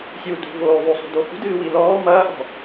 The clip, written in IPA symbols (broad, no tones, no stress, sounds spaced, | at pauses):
sʲ u d ṳ v oː ðˤ o sˤ ṳ d o h ṳ d ɨː w i l ɔː m ɐː ʔ ɔ̤